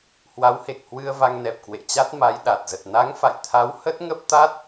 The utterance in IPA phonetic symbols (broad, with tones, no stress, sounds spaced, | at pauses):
h w a˨˦ w h e˨˩ k̚ h w ɨ˧ ə̯ v a˧ ŋ n ɛ˨˩ p̚ k w ḛ˧˨ t͡ɕ a˦˥ t̚ m a˨˦ j ɗ a˨˩ t̚ z ə˨˩ t̚ n a˨˦ ŋ f a̰˧˨ j t̪ʰ a˨˦ w h ə˦˥ t̚ ŋ ə˦˥ p̚ t̪ a˦˥ t̚